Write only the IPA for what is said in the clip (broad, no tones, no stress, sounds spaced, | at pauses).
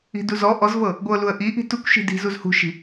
i̤ d u z ɔ ʔ ɔ z v ɤ | ɡʷ ɤ l u ə̯ ʔ i ʔ i̤ t u kʷ ʃ i̤ d i̤ z u z h ṳ ʃ i̤